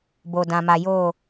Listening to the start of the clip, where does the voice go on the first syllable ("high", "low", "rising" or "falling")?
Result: low